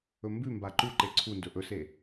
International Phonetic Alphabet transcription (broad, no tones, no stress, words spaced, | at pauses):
ɵmbʉmba ǃuǃe ǀʰundɵ ʔɵse